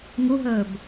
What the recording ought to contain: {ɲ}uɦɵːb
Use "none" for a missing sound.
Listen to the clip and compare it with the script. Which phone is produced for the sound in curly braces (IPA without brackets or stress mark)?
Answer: ŋ